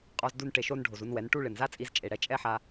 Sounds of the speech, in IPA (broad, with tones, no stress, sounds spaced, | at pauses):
qʼ ɔ˧ z d u˧ n ʈ e˧ ʃ o˦ n ɖʱ o˨ z u˧ n w ɛ˨˦ n ʈ u˦ ɭ ɪ˨ n z a˦ t͡sʼ i˧ z t͡ʃʼ e˨ ɽ ɛ˧ t͡ʃʼ ɛ˦ ħ a˧